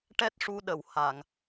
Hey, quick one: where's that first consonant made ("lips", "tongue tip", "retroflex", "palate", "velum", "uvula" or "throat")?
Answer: retroflex